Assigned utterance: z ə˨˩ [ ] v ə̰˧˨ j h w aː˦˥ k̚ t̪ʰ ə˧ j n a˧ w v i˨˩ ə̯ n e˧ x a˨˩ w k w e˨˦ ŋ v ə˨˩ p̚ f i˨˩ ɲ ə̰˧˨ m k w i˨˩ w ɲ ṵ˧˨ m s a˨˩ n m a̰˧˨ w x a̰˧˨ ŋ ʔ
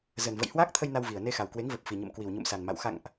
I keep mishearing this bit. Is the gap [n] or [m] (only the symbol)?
n